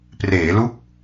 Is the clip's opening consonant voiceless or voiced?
voiceless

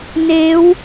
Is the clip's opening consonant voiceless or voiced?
voiced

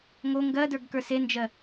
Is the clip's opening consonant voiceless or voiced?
voiced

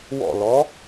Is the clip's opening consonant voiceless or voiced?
voiced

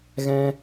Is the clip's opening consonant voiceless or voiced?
voiced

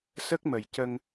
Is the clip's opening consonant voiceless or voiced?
voiceless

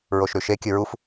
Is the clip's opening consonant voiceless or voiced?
voiced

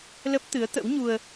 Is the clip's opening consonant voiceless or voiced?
voiced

